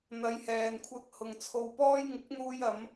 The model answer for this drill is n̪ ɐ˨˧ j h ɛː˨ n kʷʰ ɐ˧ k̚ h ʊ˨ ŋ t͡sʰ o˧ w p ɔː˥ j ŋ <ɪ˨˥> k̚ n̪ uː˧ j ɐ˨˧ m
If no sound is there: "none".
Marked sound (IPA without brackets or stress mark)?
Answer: ɪ˨˥